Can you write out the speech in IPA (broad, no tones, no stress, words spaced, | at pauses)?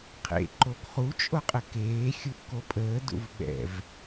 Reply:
qʰḛǃoɡ χut͡ʃʼoqʼə keː xʲuʔkopʼəːdṵv ɓɛ̰v